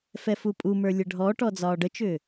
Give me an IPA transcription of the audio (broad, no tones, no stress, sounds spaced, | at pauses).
f ɛ f u pʼ u m ə˞ lʲ ə ɖʱ ɔ ʈ ɔ d͡z ɒː ɖ ə t͡ʃ ʏː